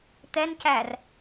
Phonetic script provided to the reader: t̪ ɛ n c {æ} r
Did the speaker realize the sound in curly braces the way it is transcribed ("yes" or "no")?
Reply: yes